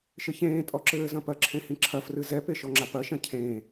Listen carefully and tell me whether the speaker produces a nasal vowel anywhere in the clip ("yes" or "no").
yes